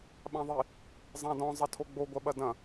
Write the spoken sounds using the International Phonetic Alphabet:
ɓãðˤi | zˤãdɔ̃ zˤɐtʰoɡ͡bo ɡʷɐɓɐdɐ̃

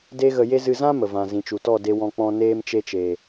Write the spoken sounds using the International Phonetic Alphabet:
de˦ɣə˧ je˦ zɨ˧zã˦mə˨vã˨ zĩ˨t͡ʃu˨tɔ˦˨de˧ wɔ̃˧k͡pɔ̃˧ neː˧mt͡ʃe˧t͡ʃe˨

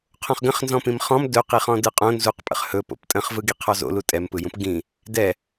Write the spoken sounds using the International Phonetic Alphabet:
qʰõχɡə̃χnzɔ̃pĩm χɔ̃m dɵqi χɔ̃dɯqʼõ nzuqpʼə̰χ hɵ po̰ptʼə̃χvɯ ɡiqʰɔzo̰lu tʼɛmpɯjũp ɡĩ | dɛ

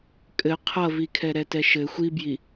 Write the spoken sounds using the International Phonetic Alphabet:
kʼɘ qʰʌvikʰɛ ɾɛtɛʃɘ xʷibji

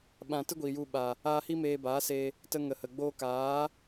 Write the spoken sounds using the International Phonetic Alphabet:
ɓã˧tɨ˦ɡʷi˨ju˧ ɓa˨ | aː˦ hi˦meː˧baː˨˦se˧ | tə˦ ŋə˨hə˨ ɡ͡boː˧kaː˨˦

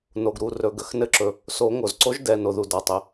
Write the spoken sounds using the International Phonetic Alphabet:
no˩ɡɾu˩˧˩ rɵ˩˧˩ɡə˩xnɘ˦ǁɵ˩ | so˨˩˦ ŋo˩zǀo˨˥ʒ dɛ˩˧˩no˩ðu˩ da˩tˤɘ˩

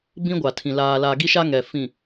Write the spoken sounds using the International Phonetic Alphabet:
bĩ˦ɡʷa˨tʰĩ˨ laː˨laː˨ɡi˦ ʃa˦ŋɛ˨ fĩ˨

